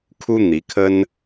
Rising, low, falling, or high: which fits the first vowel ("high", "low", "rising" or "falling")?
high